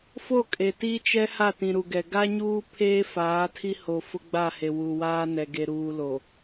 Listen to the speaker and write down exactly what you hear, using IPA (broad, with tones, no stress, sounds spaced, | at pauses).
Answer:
f o˦˨ kʼ e˨ t i˦ t͡ʃ ɛ˦ h a˦˨ t ĩ˨ ɾ u˨ ɡ ɛ˨ ɡ a˦ ɲ uː˦ pʰ eː˦ f aː˨˦ tʰ i˦ h o˨ f ʊ˦ ɡ͡b a˦˨ h e˨ w u˨ w aː˦ n ɛ˨ ɡ e˨ ɾ uː˨ l o˨